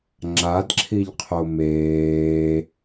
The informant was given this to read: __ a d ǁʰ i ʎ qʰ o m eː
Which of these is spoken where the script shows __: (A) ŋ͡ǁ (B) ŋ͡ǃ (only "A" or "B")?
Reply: A